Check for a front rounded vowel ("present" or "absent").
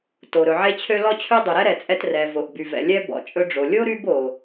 present